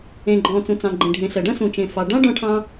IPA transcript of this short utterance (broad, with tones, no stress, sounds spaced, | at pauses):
ẽ˩ ɡ͡ǃ ɔ̃ː˩ t͡s ũ˩ t͡s ɑ̃˩ ɡ͡ǃ ẽ˩ ɖʱ ẽ˩ ɬ ɐ˩ ɖ ɐ̃˥ s ũ˩ t͡ʃ ẽ˩ f ɑ˩ ɖ ɑ̃˥ ɖ ɔ̃˥ ʈʰ ɑ̃˥